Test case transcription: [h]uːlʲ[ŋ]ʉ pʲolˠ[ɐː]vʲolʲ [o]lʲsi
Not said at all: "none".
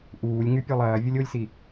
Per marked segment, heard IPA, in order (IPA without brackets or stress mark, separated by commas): ʔ, ŋ, ɐː, o